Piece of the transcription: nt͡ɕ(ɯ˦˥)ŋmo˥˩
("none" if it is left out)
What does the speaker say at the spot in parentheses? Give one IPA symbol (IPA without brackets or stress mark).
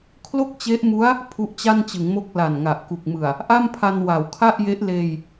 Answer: ɯ˩˦